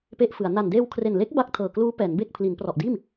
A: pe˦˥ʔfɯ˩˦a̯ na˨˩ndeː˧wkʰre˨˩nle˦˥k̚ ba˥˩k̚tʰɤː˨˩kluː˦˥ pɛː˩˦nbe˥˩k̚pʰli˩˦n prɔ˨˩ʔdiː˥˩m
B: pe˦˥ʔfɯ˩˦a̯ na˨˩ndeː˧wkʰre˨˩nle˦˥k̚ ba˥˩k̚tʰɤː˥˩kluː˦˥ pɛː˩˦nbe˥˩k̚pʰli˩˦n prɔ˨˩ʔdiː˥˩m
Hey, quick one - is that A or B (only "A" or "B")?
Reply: A